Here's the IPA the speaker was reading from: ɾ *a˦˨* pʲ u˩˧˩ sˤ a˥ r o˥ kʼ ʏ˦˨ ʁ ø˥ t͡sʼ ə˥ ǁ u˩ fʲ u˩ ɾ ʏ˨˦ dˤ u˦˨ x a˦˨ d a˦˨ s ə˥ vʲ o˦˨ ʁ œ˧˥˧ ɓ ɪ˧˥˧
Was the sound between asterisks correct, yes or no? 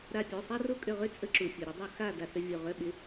yes